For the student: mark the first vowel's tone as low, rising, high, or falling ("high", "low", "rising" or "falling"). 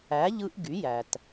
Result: rising